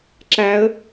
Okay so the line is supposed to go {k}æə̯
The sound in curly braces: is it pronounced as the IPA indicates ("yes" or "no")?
no